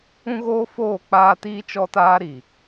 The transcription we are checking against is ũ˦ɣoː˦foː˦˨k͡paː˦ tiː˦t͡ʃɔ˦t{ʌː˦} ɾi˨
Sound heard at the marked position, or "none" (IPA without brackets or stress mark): aː˦